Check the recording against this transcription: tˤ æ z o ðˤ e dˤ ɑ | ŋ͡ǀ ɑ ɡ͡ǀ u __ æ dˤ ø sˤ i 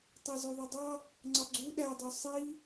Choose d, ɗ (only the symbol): ɗ